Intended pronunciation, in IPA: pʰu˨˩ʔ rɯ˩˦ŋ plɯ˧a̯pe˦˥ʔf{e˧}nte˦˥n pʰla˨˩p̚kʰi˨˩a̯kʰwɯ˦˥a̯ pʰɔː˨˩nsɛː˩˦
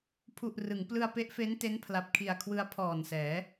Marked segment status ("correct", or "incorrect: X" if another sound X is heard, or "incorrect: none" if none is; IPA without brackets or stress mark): incorrect: e˦˥